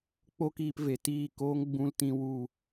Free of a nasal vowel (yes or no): no